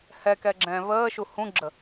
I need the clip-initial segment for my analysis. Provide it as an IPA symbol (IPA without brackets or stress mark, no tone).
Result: h